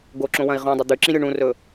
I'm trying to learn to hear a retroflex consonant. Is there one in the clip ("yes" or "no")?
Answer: yes